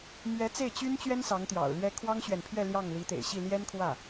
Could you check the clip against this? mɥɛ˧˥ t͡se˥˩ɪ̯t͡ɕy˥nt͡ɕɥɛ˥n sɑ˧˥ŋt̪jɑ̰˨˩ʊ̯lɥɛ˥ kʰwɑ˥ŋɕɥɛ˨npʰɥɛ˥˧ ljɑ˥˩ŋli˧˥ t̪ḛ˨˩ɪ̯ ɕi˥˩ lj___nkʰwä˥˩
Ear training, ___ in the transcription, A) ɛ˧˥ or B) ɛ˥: B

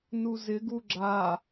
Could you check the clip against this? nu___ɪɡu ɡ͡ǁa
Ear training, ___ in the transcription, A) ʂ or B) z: B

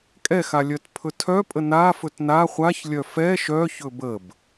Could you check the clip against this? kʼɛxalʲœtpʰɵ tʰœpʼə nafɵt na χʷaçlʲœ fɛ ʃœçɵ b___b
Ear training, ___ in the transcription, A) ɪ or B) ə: B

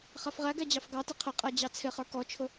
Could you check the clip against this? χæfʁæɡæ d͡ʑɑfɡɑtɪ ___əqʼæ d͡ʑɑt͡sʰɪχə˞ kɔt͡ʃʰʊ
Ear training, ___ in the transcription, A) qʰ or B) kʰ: A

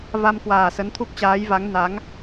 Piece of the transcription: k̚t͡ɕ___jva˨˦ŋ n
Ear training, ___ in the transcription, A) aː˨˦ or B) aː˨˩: A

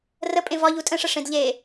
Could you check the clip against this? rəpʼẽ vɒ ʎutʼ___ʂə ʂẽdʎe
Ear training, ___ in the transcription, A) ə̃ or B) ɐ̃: A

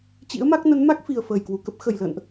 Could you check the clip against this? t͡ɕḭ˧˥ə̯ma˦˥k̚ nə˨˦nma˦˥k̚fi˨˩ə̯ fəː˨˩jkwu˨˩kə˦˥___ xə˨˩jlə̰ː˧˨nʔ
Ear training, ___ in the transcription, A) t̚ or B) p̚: B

